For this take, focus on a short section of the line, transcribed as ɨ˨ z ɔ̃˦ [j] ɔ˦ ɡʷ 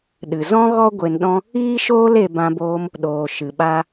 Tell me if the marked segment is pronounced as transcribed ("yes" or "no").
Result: no